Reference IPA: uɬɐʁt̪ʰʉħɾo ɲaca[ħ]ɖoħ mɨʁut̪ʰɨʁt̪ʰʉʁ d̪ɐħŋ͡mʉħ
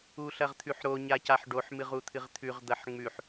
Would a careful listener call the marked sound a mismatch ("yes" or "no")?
no